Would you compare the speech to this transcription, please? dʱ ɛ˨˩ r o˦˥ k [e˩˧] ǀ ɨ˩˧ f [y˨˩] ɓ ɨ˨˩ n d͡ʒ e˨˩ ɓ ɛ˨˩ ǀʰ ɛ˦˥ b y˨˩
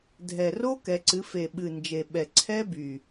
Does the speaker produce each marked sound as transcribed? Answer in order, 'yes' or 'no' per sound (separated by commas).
no, no